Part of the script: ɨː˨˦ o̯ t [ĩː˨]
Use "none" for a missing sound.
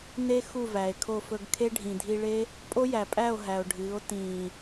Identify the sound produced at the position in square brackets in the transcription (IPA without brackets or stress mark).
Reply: ĩː˨